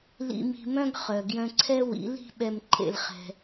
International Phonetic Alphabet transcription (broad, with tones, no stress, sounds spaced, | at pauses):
l ḭ˧ m i̤˧ m œ̃˦ ɡ χ œ˨ ɡ j œ̃˧ ǀʰ ɛ˦ w ḭ˨˦ l i̤˦ ɓ ɛ˧ m ǃʰ ḛ˧ l χ ɛ̤˧